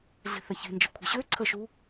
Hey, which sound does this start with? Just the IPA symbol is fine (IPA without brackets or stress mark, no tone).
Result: ɮ